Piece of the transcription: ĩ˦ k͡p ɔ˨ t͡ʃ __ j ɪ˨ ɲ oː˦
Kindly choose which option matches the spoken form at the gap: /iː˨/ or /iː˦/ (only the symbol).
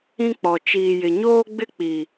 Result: iː˨